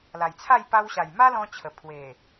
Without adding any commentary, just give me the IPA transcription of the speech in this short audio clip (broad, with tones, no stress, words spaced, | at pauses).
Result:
la˨˩jt͡sʰa˥˧j pa˧wɕa˨˩j ma˦lɔ̃˧t͡ɕʰə˨˩ pʰwe˨˩